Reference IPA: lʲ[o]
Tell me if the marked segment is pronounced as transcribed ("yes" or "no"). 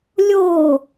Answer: yes